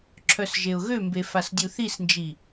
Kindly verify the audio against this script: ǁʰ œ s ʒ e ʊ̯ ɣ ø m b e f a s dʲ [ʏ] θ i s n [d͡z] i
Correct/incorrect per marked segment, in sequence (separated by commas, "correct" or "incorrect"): incorrect, incorrect